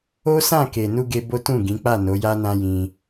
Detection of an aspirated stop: absent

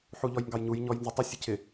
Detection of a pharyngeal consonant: present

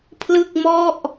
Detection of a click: absent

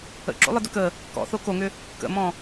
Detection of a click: present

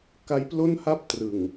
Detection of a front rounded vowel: absent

